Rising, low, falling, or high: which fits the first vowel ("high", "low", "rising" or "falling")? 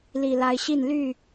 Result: low